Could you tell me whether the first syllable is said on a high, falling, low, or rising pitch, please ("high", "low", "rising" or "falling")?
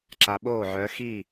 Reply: low